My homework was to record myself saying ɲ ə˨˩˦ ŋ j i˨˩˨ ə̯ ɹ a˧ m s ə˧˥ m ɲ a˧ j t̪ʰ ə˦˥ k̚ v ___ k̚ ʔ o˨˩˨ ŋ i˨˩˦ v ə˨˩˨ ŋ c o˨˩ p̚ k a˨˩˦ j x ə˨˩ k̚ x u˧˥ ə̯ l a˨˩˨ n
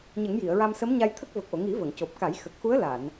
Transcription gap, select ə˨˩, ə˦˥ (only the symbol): ə˨˩